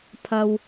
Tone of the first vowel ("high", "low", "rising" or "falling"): low